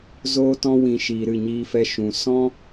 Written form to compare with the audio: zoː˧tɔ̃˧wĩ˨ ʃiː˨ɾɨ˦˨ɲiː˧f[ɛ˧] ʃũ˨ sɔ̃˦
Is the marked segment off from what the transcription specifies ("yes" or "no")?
no